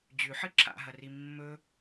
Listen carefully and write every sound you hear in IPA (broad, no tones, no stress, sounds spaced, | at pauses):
d͡ʑ ʉ ħ ɨ ǁʰ a̰ ɦ ɐ r i mː ɵ